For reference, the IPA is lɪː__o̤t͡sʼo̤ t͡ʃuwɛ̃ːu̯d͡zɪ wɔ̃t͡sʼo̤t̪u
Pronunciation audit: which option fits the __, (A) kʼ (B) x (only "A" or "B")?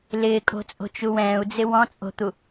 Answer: A